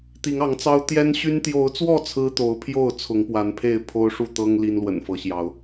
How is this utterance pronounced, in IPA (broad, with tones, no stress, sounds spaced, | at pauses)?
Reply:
t̪ i˨˦ ŋ ɑ˨˦ ŋ t͡s ɑ˦ ʊ̯ t̪ j ɛ˦ n ɕ y˦ n t̪ j o˨˦ ʊ̯ t͡s w ɔ˥˨ t͡sʰ ɹ̩˦ t̪ o˨˦ ʊ̯ pʰ j o˥˨ ʊ̯ t͡sʰ ʊ˨˦ ŋ p w a˨˦ n pʰ e˥˨ ɪ̯ pʰ o˦ ʊ̯ ʂ u˥˨ t̪ ɤ˦ ŋ l i˦ n l w ə̰˨˩ n f ɤ˨˦ ɕ j ɑ˨˦ ʊ̯